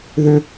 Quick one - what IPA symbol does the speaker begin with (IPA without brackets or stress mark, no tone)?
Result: ð